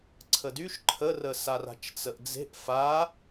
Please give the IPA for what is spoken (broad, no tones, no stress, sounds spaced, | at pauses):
ǀʰ ə d y ʃ ǃʰ ə r ə s a r a̤ t͡ʃ t͡s ə ʔ d͡z e̤ ʔ f a